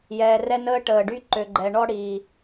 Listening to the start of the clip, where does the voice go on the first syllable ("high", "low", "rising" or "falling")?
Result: low